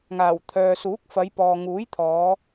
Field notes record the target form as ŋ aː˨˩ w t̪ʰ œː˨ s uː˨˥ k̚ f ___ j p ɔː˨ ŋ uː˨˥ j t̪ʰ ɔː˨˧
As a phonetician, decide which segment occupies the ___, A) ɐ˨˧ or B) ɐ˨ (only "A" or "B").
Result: A